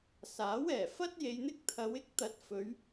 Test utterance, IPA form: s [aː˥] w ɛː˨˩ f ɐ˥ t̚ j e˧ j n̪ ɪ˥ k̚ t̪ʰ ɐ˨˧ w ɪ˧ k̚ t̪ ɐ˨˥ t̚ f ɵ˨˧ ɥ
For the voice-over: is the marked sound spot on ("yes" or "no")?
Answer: no